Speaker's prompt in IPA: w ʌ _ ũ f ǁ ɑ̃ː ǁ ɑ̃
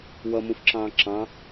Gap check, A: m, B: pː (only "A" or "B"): A